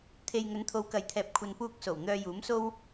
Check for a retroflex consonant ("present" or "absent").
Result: absent